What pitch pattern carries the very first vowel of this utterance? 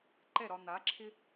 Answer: falling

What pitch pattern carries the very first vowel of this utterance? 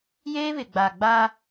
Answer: high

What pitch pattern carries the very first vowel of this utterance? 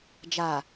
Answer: low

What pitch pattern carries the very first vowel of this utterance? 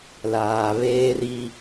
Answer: low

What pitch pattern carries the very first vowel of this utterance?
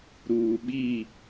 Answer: low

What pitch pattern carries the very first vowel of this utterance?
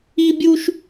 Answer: high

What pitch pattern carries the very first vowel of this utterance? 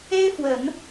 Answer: high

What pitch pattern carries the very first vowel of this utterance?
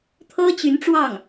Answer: high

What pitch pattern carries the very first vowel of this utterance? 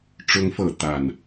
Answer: high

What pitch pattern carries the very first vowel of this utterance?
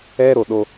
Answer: high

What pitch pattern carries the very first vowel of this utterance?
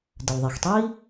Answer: low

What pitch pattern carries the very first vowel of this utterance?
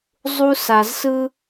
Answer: high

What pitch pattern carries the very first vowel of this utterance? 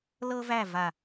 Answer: high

